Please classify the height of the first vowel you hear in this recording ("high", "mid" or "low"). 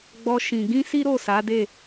mid